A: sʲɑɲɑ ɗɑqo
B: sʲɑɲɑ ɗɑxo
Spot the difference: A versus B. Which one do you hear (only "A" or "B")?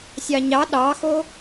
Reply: B